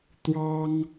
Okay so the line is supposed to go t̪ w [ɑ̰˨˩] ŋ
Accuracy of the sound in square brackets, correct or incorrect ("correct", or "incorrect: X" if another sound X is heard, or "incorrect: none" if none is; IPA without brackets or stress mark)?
incorrect: ɑ˥